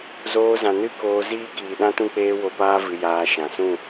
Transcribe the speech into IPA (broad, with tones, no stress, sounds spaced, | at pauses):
z oː˧ z ã˨ n ɨ˦ k oː˧ z iː˦ k iː˨ ɗ ã˦ t ũ˦ k͡p eː˦ w o˧ p aː˦ v ɨ˧ j aː˧ ʃ ã˨ s ũ˦˨